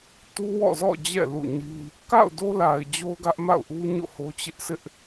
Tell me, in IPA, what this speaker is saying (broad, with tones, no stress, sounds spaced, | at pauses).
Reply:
t u˦ w ɔ̰˦˨ z ɔ̰˦˨ d͡ʑ ɛ̰˦˨ l ṵ˦˨ ɲ i˦ | k a̰˦˨ ʊ̯ d o˦ l a˨ ɪ̯ d͡ʑ o˦ ʊ̯ ɡ ä˦ ʔ m a̰˦˨ ʊ̯ ʔ u˦ ɲ o̰˦˨ h o˦ t͡ɕ ɪ˦ ʔ sʰ ɪ˦ ʔ